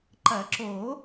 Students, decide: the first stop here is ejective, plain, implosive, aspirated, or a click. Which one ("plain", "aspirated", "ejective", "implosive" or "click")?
click